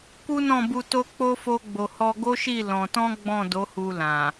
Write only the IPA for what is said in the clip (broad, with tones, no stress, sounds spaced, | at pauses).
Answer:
k u˦ n ɔ̃˦˨ b u˧ t o˦ k͡p o˦ f o˦ ɡ͡b o˧ h ɔ˧ ɡ o˦ ʃ i˦˨ l ɔ̃˧ t ɔ̃˦ ɡ͡b ɔ̃˦˨ d o˨˦ h u˧ l ã˨